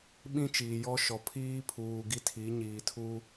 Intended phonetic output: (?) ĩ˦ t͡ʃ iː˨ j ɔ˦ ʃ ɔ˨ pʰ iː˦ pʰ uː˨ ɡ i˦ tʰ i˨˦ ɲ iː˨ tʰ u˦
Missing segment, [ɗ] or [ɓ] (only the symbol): ɓ